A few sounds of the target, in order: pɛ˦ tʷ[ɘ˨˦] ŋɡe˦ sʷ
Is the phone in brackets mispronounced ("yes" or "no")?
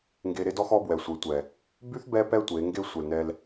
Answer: yes